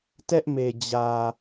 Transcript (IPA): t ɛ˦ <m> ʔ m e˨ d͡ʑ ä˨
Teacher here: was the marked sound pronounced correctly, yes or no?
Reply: no